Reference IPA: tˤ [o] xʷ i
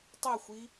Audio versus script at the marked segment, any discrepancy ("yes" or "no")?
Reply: no